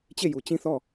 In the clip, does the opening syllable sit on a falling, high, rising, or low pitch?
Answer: falling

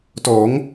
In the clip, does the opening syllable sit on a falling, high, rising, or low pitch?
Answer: rising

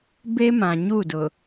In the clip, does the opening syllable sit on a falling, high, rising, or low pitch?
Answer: high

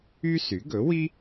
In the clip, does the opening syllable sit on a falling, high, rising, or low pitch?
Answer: high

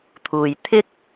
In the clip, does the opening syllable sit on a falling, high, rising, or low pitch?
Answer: low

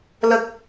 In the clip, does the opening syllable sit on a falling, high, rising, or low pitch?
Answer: low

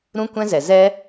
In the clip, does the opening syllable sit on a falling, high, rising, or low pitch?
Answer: high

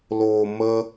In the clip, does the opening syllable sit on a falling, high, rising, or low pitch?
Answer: low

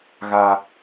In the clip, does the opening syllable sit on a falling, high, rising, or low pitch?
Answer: high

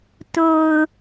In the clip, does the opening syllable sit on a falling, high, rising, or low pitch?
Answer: low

